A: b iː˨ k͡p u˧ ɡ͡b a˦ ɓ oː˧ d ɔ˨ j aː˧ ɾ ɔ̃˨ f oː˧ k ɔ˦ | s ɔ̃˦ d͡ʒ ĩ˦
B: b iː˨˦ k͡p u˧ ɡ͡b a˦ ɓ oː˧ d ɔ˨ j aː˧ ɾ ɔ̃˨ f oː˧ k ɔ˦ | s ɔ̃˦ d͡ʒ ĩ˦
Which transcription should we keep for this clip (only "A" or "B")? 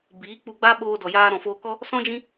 B